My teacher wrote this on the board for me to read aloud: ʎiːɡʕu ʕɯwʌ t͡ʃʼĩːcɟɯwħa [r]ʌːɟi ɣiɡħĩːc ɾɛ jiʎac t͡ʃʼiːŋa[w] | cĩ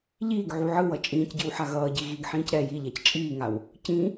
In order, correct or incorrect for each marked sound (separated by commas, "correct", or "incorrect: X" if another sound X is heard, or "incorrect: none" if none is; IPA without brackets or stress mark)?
incorrect: ɣ, correct